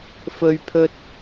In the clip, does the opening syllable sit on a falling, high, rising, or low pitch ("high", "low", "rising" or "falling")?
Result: high